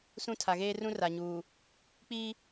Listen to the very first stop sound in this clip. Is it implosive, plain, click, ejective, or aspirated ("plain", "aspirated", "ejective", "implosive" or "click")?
aspirated